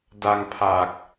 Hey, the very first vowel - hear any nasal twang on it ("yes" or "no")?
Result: no